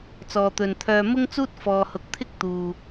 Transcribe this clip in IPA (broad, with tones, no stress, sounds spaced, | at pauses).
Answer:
t͡s ɔː˨ t̪ ɵ˨ n t̪ʰ œː˧ m ʊ˥ ŋ t͡s uː˥ t̚ f ɔː˨ h ʊ˨˥ k̚ t̪ʰ ɪ˥ k̚ t̪ uː˨